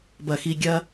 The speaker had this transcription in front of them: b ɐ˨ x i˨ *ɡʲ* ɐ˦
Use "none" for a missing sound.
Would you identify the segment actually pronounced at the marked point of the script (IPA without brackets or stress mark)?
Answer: ɡʲ